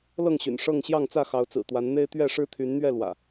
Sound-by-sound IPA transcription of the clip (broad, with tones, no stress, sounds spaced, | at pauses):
l ɤ˥˨ ŋ ɕ y̰˨˩ n ʂ ɤ˥˨ ŋ ɕ j ɑ˥˨ ŋ t͡s ä˥˨ x ɑ˨˦ ʊ̯ t͡s ɹ̩˨˩ t̪ w a˨˦ n n̪ e˦ ɪ̯ t̪ ɥ ɛ˥˨ ʂ ɻ̩˦ t̪ʰ y˨˦ n n̪ ɥ ɛ˥˨ l w ä̰˨˩